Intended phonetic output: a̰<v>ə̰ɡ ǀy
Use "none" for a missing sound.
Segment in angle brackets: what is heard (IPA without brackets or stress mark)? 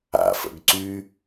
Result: f